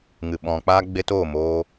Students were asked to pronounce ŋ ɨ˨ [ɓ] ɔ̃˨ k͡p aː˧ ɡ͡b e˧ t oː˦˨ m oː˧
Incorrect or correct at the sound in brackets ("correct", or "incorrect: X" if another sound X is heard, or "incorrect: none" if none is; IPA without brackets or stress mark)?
correct